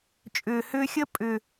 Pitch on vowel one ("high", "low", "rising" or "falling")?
low